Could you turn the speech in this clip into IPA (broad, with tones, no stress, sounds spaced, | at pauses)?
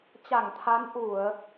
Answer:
t͡ɕ a˧˩ ŋ t̪ʰ a˨˦ n ʔ u˧˩˨ ə̯